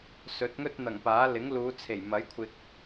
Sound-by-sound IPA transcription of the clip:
sɵ˨˥t̚ŋɵ˥t̚n̪ɐ˨˩ŋ paː˨˥ lɪ˨˥ŋluː˨˧ t͡sʰe˨˩jmɐ˨˥j kʷʰɪ˨k̚

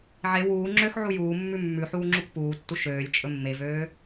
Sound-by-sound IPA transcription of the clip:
ʕe wuː ŋ͡ǁøx ʕujuːmːʉ mːʉħuː ŋ͡ǁukpuːtːu ʃøːlʲ t͡ʃʼɵmːevøː

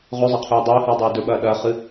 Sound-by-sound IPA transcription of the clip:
ʁɵzˤɐ qʰʉːdˤɵːhɨː dˤeːdɵɓɐː ɗɐːχɨ

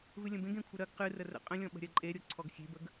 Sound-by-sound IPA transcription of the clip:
vɨlʲə̃bẽɡ ẽkʷʰəɾɜɡ qɨ rərə̰ qʼə̃lʲɔ̃ ɓə̤ɾʲɜǃʼeɾʲo ǀʰɔɡxʲe̤bəɡ

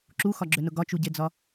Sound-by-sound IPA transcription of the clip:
ǁuxɒɡ͡ǁønʊ ɡɒt͡ʃuɟed͡zɒ

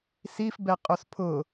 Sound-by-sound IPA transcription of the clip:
sifbɛqʼos pʰʊ

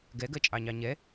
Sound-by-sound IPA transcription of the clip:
ɡɛɡɜt͡ʃʼɑɲɑ ɲɛ

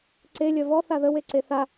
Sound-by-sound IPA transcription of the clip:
ǀe lʲœvɔ θaðə weǀeθa

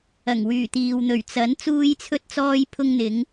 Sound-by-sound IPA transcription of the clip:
ɐ˨˩ŋwyː˨˩t̪iː˨w n̪ɵ˨˩ɥt͡sɐ˨˥n t͡suː˧jt͡sʰɵ˧t̚t͡sɔː˧j pʰʊ˧ŋn̪ɪ˨˧ŋ

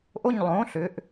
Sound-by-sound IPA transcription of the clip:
ʔo˥˧ɲlˠõ˧˥˧ ɬʏ˧˥˧ʔ

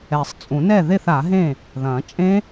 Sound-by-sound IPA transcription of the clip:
ɛ˨˩˦sˤt͡sʼũ˨˩˦nɛ˥˩ ðe˥˩θa˨˩˦ɦẽ˥˩ | ðɐ̃˨˩˦t͡ʃʼẽ˦˥

